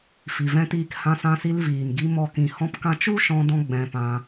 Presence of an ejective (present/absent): absent